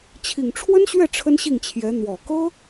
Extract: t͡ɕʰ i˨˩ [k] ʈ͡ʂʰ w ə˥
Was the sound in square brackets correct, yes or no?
no